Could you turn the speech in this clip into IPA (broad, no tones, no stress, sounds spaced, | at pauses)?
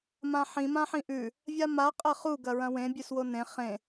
m ã ħ ĩ m ã ħ ĩ ʔ ʉ | vʲ a m a qʼ ɐ χ u ɡ ɐ ɹ ɐ̃ w ẽ bʲ ʉ s w o n ẽ χ ẽ